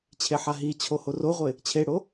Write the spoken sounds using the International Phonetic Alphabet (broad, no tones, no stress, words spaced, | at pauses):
t͡ɕʰeħaɦit͡ɕʰo horoʁʷɪ | t͡ɕʰeɽo